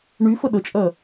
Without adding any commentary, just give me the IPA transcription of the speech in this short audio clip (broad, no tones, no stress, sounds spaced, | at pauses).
ɳ y f ə ɗ ə t͡ʃʼ ɜ